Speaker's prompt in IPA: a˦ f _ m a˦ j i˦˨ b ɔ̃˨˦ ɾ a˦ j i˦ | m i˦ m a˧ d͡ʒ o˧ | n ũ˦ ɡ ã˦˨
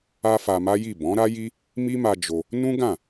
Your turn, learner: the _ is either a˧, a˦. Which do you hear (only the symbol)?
a˧